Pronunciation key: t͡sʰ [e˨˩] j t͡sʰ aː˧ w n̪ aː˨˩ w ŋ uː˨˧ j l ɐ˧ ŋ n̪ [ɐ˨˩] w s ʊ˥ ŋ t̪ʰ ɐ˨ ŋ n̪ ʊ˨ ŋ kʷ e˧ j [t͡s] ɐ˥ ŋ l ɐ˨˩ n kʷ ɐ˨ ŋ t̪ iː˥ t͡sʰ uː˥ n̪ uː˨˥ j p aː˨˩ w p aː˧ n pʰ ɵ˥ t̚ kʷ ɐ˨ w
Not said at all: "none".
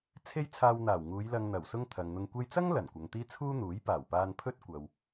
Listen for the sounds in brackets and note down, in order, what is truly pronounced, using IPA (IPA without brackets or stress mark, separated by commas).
e˥, ɐ˨˩, t͡s